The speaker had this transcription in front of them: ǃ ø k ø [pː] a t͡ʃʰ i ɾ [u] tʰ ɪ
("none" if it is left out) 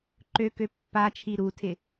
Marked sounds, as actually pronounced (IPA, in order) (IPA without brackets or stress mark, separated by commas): pː, u